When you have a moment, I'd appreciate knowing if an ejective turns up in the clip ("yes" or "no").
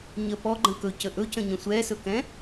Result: no